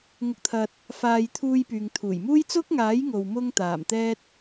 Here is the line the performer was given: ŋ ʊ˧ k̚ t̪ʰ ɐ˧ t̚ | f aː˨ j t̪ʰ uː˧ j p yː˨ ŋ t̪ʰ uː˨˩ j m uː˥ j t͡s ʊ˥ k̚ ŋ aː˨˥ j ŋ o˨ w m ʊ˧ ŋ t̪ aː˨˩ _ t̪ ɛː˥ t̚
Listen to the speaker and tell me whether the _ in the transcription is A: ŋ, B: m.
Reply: B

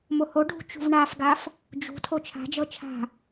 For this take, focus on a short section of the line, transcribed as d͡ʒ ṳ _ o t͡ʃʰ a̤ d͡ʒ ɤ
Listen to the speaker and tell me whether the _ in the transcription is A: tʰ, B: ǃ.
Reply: A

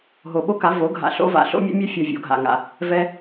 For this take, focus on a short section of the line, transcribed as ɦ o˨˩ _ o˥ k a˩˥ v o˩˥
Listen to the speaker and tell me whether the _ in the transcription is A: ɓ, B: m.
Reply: A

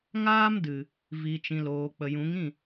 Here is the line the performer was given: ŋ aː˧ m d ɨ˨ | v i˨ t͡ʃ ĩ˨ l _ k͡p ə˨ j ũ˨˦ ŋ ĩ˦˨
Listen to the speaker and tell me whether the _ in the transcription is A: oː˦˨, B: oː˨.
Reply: B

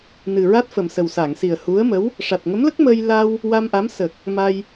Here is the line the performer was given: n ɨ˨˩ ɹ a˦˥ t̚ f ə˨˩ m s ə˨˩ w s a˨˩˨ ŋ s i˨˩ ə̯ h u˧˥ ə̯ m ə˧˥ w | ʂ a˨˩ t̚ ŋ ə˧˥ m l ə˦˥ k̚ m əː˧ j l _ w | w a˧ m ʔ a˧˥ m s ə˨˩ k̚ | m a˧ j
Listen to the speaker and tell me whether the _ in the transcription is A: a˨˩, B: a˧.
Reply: B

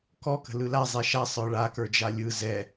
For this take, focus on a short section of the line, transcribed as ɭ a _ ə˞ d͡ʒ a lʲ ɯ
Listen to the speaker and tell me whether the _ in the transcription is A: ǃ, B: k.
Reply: B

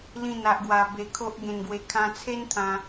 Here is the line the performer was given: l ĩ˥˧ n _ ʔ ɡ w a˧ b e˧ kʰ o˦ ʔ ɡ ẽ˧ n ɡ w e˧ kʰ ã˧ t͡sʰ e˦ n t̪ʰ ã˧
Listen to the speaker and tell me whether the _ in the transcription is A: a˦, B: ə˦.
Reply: A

